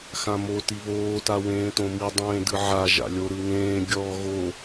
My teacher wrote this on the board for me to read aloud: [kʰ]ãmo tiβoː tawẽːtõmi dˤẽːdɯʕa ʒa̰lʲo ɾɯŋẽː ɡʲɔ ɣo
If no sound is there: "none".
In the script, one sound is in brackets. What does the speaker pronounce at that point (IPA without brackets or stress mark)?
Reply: x